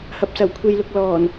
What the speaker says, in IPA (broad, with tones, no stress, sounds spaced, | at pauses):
h ɐ˨ p̚ s ɐ˨˩ w kʷʰ e˨ j l ʊ˨ k̚ l ɔː˨˩ n